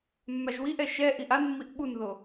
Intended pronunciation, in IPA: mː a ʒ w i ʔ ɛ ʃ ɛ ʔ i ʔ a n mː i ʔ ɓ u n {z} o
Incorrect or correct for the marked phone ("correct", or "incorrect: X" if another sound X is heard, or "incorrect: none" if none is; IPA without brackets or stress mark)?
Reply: incorrect: ð